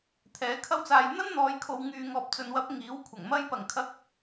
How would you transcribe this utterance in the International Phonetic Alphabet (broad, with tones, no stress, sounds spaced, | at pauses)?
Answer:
t̪ʰ ɛː˨˥ kʰ ɐ˥ w t͡s aː˧ j n̪ ɐ˥ n n̪ ɔː˨ j kʰ o˨ w ŋ yː˨ ŋ ɔː˨ p̚ t͡s ɵ˨ n w ɐ˨˥ p̚ ŋ iː˨˥ w kʷʰ ɐ˨˩ ŋ m ɐ˥ j p ɐ˨˩ ŋ kʰ ɐ˨˥ k̚